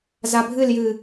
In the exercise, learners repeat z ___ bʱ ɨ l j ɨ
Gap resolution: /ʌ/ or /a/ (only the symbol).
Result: a